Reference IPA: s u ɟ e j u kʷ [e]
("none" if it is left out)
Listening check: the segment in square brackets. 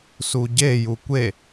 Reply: e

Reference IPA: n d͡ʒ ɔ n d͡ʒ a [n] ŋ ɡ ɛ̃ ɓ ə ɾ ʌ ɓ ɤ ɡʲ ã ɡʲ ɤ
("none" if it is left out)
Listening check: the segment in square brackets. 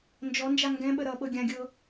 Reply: none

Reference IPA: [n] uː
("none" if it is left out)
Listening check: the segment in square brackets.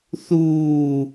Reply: θ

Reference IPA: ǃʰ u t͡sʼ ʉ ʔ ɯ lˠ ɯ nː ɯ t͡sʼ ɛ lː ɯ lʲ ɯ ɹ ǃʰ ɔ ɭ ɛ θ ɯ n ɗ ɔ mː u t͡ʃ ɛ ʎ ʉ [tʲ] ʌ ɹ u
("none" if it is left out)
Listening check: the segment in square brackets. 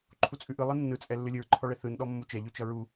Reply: t͡ʃ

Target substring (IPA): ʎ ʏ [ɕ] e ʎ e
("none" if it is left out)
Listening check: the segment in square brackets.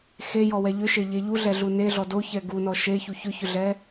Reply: ʃ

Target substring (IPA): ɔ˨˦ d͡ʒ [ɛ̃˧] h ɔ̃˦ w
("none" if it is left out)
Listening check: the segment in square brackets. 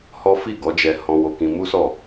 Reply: ɛ˧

